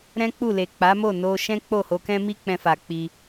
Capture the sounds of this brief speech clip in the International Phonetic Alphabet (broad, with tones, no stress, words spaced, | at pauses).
ɾɛ̃˦k͡pu˦˨le˨ k͡pa˨˦mo˦˨ no˧ ʃɛ̃˦k͡po˦˨ho˧kɛ̃˦ mi˦ k͡pɛ̃˧fa˨ k͡pi˧